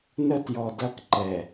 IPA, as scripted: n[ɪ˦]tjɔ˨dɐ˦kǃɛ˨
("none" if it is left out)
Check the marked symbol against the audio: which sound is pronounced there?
ə˦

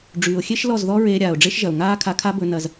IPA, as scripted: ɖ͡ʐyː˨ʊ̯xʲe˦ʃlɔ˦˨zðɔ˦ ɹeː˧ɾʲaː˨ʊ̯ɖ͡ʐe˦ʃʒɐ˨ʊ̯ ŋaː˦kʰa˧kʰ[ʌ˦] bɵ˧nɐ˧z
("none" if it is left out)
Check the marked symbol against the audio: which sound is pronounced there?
a˦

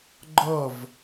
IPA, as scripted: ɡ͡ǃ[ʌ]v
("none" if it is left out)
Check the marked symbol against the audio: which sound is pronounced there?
ʌ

